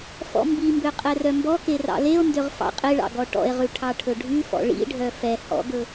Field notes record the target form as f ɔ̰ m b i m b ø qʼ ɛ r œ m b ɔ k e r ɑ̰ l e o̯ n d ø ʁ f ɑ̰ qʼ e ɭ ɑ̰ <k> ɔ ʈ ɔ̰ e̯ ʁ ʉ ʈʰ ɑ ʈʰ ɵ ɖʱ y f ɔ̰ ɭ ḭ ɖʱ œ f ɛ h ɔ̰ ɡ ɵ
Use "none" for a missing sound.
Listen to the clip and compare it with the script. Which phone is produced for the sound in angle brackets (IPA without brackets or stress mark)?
ɡ